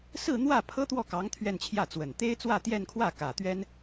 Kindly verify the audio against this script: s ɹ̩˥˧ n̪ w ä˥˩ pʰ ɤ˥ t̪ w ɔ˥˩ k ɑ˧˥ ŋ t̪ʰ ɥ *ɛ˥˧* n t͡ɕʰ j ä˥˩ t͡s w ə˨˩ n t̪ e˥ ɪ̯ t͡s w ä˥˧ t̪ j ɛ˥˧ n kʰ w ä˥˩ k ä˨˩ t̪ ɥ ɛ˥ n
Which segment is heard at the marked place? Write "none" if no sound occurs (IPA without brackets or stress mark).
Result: ɛ˥˧